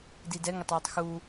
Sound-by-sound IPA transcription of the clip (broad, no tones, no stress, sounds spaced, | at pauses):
d i d ɛ ŋ ə tˤ w ɪ tˤ x u